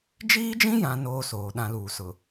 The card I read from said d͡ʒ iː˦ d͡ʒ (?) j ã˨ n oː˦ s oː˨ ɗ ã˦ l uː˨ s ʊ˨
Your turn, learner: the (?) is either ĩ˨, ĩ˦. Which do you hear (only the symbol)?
ĩ˦